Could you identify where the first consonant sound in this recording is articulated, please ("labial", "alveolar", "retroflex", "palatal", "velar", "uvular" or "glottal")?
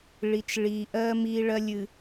retroflex